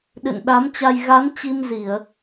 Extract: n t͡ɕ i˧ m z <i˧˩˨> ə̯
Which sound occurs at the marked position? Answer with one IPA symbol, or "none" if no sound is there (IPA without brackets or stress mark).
i˧˩˨